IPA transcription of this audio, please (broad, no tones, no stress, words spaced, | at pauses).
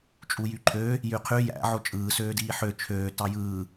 t͡ʃʼujyǃʰø | jyqʰy jæ̰ ʕot͡ʃʼɯː søːdiːħø t͡ʃʰøː tɑjɯː